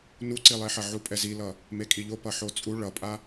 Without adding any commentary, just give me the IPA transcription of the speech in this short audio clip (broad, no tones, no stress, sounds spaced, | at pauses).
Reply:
n u ǀ i lˠ e ħ ʌ ʕ u pʼ ɛ z i l ʌ | m e kʼ i ʎ o p ʌ ħ o t͡sʼ u ɭ ʌ pʼ a